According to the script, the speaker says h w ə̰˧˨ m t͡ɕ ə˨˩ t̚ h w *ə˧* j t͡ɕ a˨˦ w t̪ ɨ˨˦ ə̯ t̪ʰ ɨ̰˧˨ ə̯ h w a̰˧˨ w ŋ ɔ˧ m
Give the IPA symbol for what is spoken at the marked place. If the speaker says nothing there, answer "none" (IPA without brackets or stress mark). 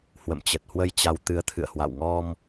ə˧